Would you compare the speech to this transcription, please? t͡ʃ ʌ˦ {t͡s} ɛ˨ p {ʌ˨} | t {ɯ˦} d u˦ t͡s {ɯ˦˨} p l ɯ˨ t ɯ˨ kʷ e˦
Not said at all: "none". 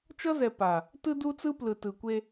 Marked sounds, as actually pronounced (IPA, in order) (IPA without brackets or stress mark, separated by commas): z, a˨, ɯ˦, ɯ˦